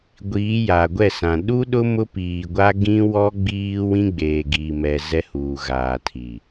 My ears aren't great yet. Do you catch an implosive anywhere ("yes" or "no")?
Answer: yes